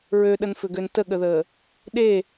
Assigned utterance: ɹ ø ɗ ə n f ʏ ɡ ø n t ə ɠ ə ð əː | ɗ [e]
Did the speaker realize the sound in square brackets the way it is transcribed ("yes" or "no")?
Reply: yes